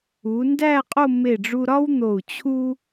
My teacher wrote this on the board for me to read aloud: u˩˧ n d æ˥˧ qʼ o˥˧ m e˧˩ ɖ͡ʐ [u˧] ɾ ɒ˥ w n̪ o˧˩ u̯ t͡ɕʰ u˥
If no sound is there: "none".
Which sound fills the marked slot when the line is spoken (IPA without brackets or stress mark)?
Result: u˧